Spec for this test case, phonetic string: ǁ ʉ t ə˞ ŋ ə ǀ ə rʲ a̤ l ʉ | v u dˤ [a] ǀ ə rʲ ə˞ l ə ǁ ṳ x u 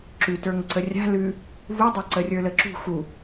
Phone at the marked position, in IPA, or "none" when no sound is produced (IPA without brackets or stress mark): a